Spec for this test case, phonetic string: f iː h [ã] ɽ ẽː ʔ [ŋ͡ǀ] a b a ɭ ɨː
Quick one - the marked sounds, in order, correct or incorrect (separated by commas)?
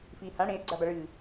correct, incorrect